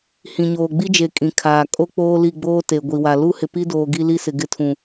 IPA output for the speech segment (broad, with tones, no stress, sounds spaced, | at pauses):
h ĩ˨ ɲ oː˨ ɡ͡b i˦ d͡ʒ e˨ kʼ ĩ˨ kʰ aː˨ kʼ o˦ k͡p oː˦ l i˦˨ ɡ͡b oː˦ t e˨ ɡʷ i˨ w a˨ l u˦ h ɪ˨ p i˦ d oː˨ ɡ i˦ l i˦ s ɪ˨ ɡ ɪ˦ tʰ ũ˨